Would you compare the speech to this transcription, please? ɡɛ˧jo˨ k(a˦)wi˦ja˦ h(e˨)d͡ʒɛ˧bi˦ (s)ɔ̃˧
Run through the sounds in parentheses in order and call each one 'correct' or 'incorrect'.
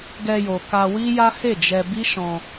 incorrect: a˧, incorrect: e˦˨, incorrect: ʃ

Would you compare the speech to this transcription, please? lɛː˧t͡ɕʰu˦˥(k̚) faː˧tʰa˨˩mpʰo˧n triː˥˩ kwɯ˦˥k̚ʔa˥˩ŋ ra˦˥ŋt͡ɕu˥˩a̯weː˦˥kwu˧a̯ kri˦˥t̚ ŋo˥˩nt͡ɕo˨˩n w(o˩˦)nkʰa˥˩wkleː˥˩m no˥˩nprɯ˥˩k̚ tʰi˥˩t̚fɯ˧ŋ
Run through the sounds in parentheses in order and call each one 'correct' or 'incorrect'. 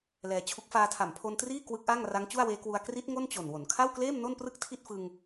correct, correct

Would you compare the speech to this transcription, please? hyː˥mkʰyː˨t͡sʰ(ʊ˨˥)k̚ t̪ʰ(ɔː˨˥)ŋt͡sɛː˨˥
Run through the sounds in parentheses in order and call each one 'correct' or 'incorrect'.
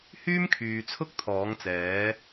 incorrect: ʊ˥, correct

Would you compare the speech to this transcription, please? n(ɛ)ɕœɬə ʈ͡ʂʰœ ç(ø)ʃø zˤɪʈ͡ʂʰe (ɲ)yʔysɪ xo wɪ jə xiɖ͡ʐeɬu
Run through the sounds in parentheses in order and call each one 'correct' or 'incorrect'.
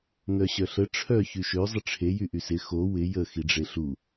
incorrect: œ, incorrect: y, incorrect: j

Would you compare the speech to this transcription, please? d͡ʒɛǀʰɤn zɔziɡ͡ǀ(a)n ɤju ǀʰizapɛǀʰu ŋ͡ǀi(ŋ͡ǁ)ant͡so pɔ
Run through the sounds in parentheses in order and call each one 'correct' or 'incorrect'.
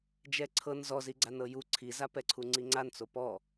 correct, incorrect: ŋ͡ǀ

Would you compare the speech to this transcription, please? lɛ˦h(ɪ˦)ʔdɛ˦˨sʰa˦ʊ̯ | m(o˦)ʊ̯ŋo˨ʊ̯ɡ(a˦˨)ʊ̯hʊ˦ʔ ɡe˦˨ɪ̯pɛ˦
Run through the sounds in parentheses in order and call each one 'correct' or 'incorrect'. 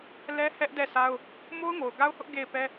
incorrect: ɛ˦, correct, incorrect: a˦

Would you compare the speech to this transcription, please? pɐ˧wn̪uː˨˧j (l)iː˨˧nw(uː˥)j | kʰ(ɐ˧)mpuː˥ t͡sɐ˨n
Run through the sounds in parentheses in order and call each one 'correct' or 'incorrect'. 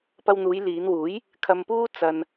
correct, incorrect: uː˨˥, correct

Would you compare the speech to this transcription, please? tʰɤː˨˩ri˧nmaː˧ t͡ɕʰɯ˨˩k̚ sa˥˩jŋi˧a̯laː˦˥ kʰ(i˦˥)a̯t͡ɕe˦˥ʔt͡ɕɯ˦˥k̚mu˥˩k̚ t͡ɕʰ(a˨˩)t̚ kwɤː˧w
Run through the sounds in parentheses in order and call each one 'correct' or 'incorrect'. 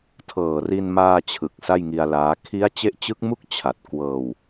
correct, correct

